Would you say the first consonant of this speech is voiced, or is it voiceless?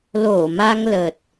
voiced